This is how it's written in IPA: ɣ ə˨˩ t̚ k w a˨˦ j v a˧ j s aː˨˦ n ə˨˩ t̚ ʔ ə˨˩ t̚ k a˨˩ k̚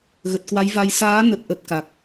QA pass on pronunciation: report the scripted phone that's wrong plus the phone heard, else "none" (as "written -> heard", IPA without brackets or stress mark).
none